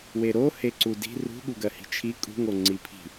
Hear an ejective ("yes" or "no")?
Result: yes